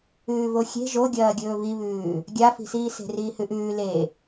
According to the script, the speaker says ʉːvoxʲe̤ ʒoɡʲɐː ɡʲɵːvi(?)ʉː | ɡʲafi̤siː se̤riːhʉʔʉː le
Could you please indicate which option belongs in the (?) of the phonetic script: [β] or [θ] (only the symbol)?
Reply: β